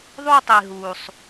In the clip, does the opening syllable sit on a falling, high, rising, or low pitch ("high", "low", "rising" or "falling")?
high